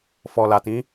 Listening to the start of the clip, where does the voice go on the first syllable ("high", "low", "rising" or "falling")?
low